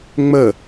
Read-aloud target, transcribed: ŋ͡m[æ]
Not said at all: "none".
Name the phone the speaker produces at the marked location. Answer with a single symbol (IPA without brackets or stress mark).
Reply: ə